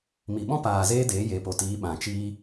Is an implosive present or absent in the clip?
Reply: present